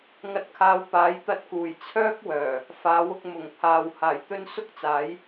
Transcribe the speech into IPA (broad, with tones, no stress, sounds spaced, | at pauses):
ŋ ɐ˧ t̚ kʰ aː˨˧ w p aː˨˥ j t̪ ɐ˧ t̚ k uː˨˩ j t͡sʰ œː˥ k̚ w œː˨˩ | f aː˨˥ w ʊ˧ k̚ m ʊ˨˩ ŋ pʰ aː˨ w h aː˨˩ j t̪ ɵ˧ n s ʊ˥ k̚ t͡s aː˨˥ j